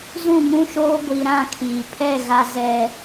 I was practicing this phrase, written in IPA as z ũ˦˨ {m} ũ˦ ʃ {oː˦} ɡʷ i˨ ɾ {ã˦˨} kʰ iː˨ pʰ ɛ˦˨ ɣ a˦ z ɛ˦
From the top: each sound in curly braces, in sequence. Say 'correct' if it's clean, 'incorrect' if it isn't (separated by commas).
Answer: correct, correct, correct